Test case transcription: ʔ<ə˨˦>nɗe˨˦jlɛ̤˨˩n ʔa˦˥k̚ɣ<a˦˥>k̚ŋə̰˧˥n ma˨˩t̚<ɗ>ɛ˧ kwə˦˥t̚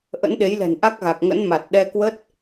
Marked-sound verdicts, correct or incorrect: incorrect: ə̰˧˥, incorrect: a˨˩, correct

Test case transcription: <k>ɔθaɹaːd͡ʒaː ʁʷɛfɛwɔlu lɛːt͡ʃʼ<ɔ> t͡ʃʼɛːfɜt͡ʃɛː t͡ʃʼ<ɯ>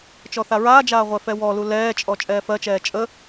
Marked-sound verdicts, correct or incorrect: incorrect: t͡ʃ, correct, incorrect: ə

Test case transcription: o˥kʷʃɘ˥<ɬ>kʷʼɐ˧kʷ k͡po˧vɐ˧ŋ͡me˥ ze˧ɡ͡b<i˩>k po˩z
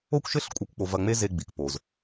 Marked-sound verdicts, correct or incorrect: correct, correct

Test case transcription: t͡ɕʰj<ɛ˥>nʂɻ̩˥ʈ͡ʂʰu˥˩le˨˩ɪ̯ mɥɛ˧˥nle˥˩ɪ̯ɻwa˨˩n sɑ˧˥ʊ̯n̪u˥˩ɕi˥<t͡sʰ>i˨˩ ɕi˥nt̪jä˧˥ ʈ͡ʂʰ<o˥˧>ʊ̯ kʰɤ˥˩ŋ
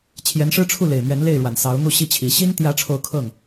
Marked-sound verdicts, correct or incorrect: incorrect: ɛ˧˥, incorrect: t͡ɕʰ, correct

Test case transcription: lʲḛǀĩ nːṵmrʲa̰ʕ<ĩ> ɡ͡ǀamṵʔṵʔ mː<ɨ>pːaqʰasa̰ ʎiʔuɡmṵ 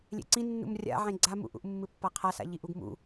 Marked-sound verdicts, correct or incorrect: incorrect: ẽ, correct

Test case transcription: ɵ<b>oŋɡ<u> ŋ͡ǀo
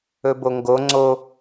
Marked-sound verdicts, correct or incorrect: correct, incorrect: o

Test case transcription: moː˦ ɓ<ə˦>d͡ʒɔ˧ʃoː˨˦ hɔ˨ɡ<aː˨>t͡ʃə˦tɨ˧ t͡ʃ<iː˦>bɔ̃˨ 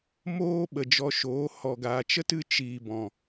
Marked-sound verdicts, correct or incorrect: incorrect: ə˨, correct, incorrect: iː˨

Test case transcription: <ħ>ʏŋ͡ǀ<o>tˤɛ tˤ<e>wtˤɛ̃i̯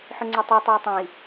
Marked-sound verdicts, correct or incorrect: correct, correct, correct

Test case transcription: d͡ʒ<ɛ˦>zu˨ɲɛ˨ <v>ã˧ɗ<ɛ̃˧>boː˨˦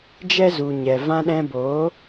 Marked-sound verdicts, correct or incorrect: correct, correct, correct

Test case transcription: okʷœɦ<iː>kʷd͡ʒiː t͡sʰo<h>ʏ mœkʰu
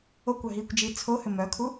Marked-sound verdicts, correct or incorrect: correct, correct

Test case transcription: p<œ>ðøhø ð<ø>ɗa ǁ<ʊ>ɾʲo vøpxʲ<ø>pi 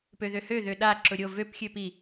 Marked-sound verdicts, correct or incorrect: incorrect: ø, correct, correct, correct

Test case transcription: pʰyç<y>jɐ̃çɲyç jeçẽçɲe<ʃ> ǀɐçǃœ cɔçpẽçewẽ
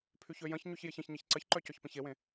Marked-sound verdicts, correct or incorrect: incorrect: ø, incorrect: ç

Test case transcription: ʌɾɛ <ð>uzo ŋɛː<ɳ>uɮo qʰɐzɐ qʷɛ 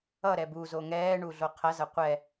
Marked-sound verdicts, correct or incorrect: incorrect: b, correct

